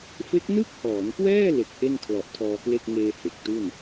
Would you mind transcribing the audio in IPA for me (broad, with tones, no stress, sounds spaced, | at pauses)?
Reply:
f e˦˥ k̚ n ɯ˥˩ k̚ h ɔː˩˦ n k w ɛː˥˩ l e˨˩ k̚ ʔ e˥˩ n kʰ l ɔ˨˩ ʔ tʰ ɔː˧ k l e˥˩ k̚ ŋ eː˧ h e˨˩ k̚ t u˥˩ n